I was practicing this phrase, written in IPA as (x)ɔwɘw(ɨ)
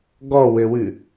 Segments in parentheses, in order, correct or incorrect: incorrect, correct

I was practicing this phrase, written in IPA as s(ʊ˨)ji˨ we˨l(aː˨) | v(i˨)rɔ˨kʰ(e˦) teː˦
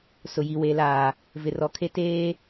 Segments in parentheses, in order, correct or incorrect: correct, correct, incorrect, correct

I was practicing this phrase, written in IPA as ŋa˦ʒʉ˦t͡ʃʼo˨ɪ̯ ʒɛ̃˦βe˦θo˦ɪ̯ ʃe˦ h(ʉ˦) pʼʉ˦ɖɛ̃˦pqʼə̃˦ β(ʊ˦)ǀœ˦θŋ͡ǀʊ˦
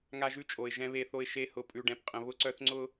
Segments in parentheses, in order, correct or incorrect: incorrect, correct

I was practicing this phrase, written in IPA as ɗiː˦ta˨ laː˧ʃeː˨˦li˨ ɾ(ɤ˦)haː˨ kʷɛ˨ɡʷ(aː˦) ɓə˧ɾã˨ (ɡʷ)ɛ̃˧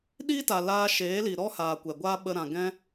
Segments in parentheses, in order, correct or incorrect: incorrect, correct, incorrect

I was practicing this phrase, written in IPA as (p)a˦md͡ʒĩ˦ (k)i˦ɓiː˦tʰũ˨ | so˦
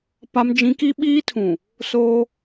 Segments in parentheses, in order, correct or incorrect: correct, correct

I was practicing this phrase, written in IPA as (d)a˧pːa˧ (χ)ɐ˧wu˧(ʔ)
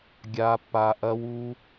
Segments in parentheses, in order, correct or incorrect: incorrect, incorrect, incorrect

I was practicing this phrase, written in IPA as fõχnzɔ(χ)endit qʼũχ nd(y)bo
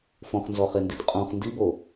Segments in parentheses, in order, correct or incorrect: correct, incorrect

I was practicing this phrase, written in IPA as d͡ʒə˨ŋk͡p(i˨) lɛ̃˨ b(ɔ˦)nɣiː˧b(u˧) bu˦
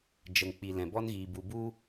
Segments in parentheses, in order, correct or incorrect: correct, correct, correct

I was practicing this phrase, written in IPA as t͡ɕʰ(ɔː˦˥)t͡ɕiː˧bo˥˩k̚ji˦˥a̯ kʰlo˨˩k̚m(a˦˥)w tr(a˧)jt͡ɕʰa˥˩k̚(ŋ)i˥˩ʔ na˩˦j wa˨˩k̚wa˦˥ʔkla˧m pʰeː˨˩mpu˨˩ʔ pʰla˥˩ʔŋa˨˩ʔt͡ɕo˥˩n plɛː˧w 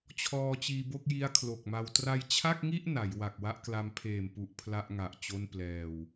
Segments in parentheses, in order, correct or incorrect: incorrect, incorrect, correct, correct

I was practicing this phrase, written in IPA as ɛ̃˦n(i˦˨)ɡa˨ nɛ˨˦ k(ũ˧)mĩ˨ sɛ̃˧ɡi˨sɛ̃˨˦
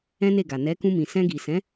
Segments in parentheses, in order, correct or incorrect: incorrect, correct

